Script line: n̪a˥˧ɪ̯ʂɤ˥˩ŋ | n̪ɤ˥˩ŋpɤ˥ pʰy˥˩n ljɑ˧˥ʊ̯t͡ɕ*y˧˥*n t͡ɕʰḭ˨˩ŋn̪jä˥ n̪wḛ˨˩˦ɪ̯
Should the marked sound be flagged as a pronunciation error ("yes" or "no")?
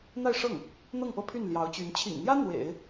no